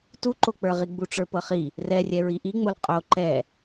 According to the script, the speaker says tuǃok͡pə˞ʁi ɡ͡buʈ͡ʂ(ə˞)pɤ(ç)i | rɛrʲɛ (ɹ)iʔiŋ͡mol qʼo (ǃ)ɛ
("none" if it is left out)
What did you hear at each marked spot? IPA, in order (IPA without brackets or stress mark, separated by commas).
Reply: ə˞, χ, ɹ, ǃ